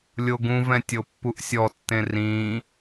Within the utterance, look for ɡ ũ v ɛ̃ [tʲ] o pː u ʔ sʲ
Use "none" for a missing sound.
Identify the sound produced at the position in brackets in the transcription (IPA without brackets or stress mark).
tʲ